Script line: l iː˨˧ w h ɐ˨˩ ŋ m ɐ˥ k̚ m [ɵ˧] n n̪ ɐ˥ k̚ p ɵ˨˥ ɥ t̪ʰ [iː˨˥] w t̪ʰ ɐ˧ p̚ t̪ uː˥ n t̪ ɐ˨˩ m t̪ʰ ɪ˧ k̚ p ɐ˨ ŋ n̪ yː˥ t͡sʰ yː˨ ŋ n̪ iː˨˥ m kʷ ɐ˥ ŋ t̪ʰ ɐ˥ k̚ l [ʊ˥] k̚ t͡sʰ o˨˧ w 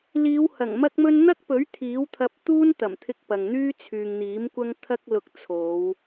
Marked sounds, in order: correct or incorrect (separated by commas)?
incorrect, correct, incorrect